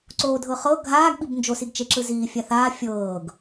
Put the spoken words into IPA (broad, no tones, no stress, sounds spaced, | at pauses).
ǀ oː dʱ ɤ χ ɤ ɡʱ aː ɡ ɓ i b n d͡ʒ o s i ɡ t͡ʃ e ǁ ɯ z iː fʲ a θ aː fʲ ɤː ɡ